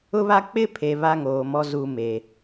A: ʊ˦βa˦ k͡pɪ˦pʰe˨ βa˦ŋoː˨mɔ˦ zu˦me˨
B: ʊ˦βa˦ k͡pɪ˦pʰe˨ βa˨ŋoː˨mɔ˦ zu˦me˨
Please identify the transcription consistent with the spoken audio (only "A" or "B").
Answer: A